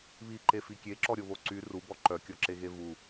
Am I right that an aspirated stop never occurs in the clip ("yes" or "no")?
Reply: yes